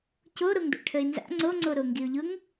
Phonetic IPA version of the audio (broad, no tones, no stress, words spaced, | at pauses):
coɾoŋ do̰ʈʰəɪ̯nza̰ ŋ͡ǀoŋ͡ǀo ɾoŋɡiʊ̯ʎʊŋ